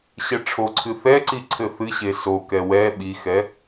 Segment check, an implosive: present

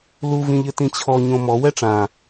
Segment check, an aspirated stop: present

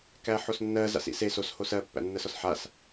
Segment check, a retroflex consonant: absent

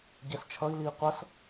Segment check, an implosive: absent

